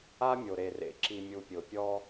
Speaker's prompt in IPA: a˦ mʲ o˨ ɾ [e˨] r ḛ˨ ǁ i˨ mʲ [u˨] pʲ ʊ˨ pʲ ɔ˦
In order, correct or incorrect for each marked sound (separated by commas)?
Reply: correct, correct